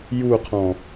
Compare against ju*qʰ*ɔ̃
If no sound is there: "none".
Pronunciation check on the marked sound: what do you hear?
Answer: qʰ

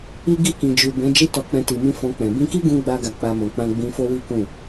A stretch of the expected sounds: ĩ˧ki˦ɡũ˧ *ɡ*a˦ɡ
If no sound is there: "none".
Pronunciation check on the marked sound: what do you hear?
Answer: ɡ͡b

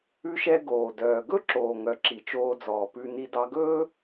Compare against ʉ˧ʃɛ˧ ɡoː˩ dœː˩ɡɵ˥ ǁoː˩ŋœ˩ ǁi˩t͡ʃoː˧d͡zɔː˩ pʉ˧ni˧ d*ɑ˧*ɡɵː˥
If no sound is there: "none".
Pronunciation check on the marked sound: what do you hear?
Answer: ɑ˧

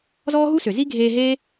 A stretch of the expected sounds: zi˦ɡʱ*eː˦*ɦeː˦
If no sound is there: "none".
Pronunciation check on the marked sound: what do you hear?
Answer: eː˧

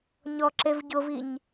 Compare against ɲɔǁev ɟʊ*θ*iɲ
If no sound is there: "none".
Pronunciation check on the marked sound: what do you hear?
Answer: v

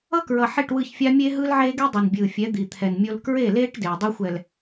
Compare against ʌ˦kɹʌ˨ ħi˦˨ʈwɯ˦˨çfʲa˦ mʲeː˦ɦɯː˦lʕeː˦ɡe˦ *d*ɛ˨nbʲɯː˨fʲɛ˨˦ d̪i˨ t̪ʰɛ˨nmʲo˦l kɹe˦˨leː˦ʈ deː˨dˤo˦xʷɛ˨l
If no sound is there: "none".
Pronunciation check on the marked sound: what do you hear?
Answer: dˤ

